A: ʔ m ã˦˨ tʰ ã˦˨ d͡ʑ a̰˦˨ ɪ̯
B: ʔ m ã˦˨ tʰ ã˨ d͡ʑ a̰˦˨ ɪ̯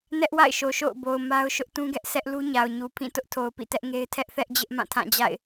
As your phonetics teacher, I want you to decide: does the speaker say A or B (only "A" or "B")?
A